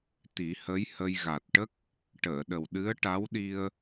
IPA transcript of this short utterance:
t̪ i˨˩˦ h ə˧˥ j h ə˧ j ɣ a˨˩ t̚ ʈ ə˦˥ k̚ | ʈ əː˨˩˨ ɗ ə˨˩ w ɗ ɨ˧˥ ə̯ ʈ a˧˥ w ɗ i˧ ə̯

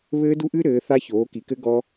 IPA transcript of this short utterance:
β ɘː˦˥ d u˦˥ ʔ ɨ˦˥ ɾ ɘː˨˦ θ a˦˥ ç oː˨˦ k i˨˦ k ɘ˦˥ ɡ ɔ˦˥

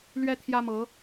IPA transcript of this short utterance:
l ɥ ɛ˦ t̪ʰ j ä˦ m ɤ˨˦

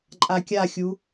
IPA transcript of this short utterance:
ǃʼ a kʲ a xʲ u

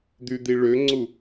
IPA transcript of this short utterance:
d̪ y d̪ i ɭ ø ŋ͡ǀ u

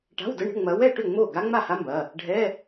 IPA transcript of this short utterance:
ʈ a̤˧˥˧ w d ə˧˥˧ ɳ ə̤˧˥˧ ŋ͡m ɐ˨˦ w ɛ˥˩ ʈ ø˥˩ ŋ͡m o˥˩ ɡ a˦˥ ŋ͡m a˥˩ h a˦˥ m b ɐ˩˧˩ | ɖʱ ɛ˧˥˧

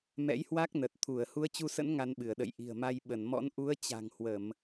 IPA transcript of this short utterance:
m ɛ̰˧˥ j h w a˦˥ k̚ n ə˨˩ t̚ t̪ʰ u˧˩ ə̯ h u˧ ə̯ t͡ɕ u˧ s ə̰˧˥ n ŋ a˧ n ɓ ɨ˧˩ ə̯ ɗ ə̰˧˨ j ʔ i̤˨˩ ə̯ m a˧ j ɓ ə˧˩ n m ɔ̰˧˥ n ʔ u˨˦ ə̯ t͡ɕ a̤˨˩ ŋ h w ə˧˩˨ m

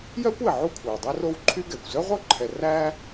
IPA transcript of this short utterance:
j œ˥ kʷ ɛ˩ ʕ u˦ kʷʰ œ˩ w dˤ ɛ˦ r o˦ w ǃʰ y˦ ɡ ɛ˩ kʷ z œ˥ ʁʷ œ˥ ǃʰ ɛ˨ r æ˦

